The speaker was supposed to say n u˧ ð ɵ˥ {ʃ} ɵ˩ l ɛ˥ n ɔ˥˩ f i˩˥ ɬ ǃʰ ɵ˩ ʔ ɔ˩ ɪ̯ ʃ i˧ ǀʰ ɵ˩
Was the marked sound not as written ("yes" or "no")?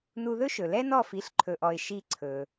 no